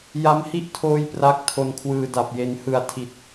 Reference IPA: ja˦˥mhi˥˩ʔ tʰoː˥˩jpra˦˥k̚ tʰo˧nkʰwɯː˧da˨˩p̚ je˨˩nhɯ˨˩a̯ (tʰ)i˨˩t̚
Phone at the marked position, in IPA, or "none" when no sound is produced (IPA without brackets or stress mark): tʰ